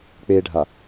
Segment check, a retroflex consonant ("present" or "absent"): present